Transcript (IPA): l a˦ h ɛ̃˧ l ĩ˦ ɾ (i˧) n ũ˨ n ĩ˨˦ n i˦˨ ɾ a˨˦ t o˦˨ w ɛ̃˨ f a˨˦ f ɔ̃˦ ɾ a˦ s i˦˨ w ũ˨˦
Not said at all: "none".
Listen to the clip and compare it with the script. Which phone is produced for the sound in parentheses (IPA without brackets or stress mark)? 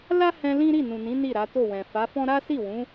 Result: i˦˨